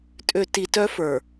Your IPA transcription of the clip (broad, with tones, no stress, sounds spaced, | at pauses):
tʼ ø˨ t i˨ t œ˦ f ə˞˨